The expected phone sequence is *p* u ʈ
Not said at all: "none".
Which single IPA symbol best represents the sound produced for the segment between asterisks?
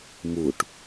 m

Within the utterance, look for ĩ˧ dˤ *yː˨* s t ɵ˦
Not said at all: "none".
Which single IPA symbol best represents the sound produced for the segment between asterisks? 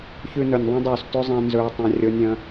yː˨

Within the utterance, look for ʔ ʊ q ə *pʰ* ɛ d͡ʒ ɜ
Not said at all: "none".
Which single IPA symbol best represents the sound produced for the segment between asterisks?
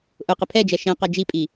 pʰ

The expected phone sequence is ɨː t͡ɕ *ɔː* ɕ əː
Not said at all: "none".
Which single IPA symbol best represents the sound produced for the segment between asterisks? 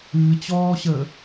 ɔː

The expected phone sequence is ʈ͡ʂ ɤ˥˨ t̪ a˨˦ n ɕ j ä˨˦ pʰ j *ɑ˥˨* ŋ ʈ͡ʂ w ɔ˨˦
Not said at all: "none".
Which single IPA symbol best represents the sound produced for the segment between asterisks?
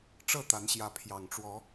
ɑ˨˩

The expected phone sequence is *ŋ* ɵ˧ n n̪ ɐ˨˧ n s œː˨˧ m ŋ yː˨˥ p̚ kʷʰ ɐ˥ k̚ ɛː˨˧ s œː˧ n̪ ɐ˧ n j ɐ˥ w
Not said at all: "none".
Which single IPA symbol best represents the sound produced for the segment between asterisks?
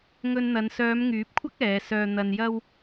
ŋ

